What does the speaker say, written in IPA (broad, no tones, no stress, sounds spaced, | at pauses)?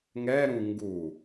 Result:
ŋ ɛ ɾ ũ ŋ ɡ u